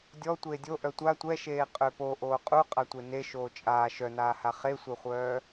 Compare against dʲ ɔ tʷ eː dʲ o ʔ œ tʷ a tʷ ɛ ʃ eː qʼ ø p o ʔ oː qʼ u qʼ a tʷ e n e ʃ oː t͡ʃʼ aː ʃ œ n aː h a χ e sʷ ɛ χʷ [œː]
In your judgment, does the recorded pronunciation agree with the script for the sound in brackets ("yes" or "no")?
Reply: yes